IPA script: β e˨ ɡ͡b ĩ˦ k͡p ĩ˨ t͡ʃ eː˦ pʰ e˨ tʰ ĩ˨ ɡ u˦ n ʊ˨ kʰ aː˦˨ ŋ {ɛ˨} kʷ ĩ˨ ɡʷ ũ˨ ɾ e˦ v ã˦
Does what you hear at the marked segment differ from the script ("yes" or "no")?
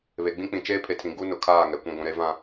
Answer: no